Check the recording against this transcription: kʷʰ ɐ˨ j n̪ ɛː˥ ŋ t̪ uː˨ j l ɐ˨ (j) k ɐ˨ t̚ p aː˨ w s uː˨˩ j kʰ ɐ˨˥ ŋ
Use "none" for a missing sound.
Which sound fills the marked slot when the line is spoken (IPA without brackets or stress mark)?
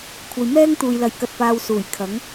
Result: j